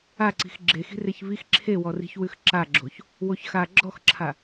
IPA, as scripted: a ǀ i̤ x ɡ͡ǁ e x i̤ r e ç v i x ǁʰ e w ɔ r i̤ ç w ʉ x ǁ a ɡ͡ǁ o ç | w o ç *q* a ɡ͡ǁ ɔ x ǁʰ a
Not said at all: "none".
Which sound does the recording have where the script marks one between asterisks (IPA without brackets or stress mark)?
x